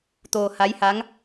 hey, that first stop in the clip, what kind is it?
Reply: plain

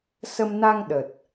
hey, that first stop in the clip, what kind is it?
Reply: implosive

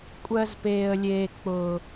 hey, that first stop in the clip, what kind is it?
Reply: ejective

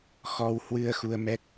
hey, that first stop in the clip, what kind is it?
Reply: plain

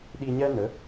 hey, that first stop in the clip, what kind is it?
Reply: implosive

